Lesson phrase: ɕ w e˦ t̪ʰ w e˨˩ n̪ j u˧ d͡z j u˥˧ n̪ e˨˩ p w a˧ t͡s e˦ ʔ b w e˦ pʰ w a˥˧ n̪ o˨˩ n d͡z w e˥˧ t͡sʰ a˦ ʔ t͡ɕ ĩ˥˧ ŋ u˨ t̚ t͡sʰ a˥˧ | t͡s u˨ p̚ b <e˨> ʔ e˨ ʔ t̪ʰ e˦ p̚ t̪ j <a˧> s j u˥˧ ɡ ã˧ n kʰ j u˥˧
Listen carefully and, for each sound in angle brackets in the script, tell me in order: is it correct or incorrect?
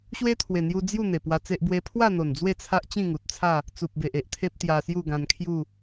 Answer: correct, correct

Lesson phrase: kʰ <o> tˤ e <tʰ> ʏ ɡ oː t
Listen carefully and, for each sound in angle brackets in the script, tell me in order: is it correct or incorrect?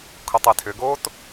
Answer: correct, correct

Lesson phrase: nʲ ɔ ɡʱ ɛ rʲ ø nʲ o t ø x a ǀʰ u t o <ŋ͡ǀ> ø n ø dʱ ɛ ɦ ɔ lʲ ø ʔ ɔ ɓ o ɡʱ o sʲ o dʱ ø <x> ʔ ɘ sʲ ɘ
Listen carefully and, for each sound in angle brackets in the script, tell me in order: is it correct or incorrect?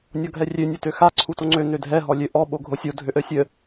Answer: correct, incorrect: none

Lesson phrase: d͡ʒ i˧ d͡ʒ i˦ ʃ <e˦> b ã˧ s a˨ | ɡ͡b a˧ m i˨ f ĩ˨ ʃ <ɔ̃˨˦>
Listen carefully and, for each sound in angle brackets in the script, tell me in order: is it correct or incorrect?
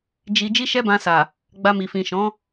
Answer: incorrect: ɛ˦, correct

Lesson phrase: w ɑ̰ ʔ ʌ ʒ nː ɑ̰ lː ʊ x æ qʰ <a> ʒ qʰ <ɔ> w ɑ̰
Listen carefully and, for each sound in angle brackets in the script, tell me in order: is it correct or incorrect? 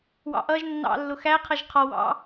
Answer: incorrect: ʌ, correct

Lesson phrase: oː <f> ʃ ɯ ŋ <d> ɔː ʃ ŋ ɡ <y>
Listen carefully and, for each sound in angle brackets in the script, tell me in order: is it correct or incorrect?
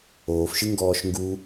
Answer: correct, incorrect: ɡ, incorrect: u

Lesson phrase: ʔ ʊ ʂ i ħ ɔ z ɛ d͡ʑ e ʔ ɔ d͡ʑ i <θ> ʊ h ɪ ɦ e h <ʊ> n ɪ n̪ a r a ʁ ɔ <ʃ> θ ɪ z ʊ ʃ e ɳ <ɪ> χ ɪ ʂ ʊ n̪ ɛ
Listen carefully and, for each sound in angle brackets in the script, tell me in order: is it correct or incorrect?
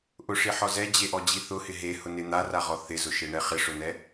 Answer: correct, correct, incorrect: none, incorrect: ɛ

